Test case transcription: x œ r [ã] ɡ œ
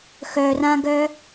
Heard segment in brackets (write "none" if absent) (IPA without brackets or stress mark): ã